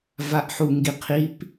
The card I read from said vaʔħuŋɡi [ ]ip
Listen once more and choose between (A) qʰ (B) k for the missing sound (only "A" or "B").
A